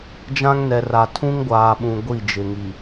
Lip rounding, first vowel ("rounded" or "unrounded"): unrounded